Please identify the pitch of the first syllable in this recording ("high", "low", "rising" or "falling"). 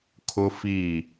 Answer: high